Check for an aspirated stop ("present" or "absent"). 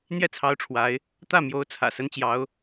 present